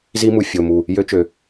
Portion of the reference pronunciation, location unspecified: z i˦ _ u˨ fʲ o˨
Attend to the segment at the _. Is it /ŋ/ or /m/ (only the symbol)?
m